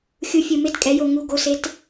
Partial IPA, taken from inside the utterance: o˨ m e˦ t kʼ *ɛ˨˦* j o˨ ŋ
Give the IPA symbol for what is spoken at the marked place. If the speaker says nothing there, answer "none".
ɛ˨˦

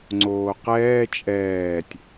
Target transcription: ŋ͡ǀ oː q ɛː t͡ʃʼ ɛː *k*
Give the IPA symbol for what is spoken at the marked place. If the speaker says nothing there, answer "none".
tʲ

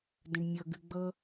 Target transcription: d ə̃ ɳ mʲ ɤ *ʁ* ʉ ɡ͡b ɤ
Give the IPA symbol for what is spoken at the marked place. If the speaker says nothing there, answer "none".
ɡ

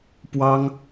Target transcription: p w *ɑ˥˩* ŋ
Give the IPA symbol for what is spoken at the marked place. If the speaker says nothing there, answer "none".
ɑ˥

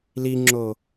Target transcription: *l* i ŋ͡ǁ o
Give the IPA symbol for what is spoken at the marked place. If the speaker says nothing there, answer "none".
l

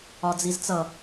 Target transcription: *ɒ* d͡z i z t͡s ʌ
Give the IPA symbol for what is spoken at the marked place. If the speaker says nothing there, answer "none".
ɒ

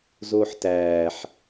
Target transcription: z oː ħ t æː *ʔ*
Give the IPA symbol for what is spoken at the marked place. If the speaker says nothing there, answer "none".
ħ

